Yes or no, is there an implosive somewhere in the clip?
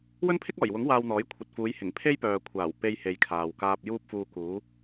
no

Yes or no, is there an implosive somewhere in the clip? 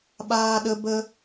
yes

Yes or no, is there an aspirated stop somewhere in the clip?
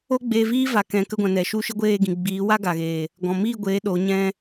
no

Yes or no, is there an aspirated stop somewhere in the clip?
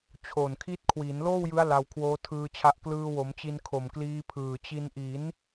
yes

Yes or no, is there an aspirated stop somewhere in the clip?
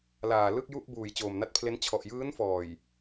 yes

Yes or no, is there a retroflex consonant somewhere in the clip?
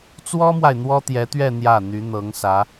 no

